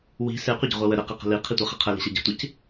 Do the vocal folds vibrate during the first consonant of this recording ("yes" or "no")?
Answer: yes